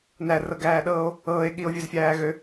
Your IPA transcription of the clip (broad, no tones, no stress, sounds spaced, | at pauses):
n æ r ɤ ɡ æː ɗ ɤː o̯ | ɤː e̯ ɠ i o̯ vʲ ø z fʲ æː ɣ ø